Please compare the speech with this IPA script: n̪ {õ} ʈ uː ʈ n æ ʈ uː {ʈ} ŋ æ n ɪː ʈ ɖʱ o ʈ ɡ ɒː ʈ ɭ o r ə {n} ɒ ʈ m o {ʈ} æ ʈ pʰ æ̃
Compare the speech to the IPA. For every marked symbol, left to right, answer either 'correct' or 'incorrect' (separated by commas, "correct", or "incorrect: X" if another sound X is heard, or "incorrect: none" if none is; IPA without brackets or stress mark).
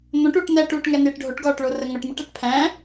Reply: correct, correct, incorrect: ŋ, correct